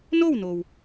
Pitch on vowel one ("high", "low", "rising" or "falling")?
falling